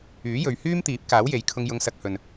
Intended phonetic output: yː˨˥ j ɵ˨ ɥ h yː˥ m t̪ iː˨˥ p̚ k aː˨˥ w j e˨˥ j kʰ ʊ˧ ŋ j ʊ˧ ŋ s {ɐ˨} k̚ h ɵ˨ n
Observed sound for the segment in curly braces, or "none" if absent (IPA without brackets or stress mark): ɐ˧